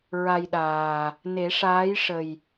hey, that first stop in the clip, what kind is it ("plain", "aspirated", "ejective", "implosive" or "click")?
implosive